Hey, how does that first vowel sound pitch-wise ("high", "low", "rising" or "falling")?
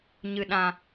low